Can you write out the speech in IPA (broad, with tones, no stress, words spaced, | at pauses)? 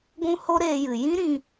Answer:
ɡʷũ˦ho˦ɾeː˧jɨ˨ jĩ˦ɾĩ˧